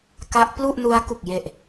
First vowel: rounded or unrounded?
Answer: unrounded